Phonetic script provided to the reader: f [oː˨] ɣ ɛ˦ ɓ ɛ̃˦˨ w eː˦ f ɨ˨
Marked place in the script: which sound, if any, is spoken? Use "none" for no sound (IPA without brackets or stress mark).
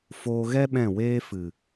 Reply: oː˧